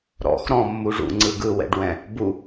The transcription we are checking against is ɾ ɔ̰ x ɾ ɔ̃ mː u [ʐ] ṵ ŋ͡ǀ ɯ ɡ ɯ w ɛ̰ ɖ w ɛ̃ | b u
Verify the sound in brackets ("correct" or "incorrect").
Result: correct